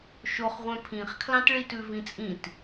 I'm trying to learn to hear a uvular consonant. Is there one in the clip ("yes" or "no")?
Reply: yes